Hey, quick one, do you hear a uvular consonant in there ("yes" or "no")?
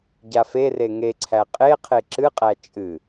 yes